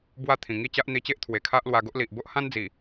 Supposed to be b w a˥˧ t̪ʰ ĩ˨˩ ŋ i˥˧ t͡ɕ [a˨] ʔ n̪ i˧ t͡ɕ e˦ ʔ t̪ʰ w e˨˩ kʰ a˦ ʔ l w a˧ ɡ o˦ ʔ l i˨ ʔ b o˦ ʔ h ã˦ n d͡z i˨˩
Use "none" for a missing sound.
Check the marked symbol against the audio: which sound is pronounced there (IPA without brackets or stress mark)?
a˦